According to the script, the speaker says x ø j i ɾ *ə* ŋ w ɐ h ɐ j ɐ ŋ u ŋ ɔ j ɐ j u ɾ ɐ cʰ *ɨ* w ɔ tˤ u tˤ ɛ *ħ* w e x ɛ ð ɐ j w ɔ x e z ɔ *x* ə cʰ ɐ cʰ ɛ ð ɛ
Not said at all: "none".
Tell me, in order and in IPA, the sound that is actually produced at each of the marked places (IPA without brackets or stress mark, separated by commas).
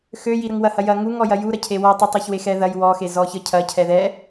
ə, e, ç, ç